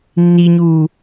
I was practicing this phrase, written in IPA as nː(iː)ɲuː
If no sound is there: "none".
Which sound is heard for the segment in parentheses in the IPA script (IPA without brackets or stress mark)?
i